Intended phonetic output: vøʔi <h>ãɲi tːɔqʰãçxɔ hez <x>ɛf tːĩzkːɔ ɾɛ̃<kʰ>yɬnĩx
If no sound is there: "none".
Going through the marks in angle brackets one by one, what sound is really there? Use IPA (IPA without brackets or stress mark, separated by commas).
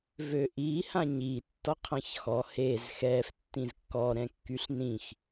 h, x, kː